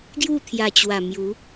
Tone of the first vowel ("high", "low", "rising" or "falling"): falling